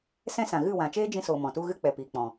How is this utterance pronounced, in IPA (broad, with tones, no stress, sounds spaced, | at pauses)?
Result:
s ɛ̃˦ s ã˨ ɣ ɨ˦˨ w ã˨ t͡ʃ eː˦ d͡ʒ ĩ˧ s oː˨ m ɔ̃˨ t u˦ ɣ ɨ˦ k͡p ɛ˨ p iː˨ k͡p ɔ̃˨